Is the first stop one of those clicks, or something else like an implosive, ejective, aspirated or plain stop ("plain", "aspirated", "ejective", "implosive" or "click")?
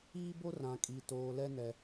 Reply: plain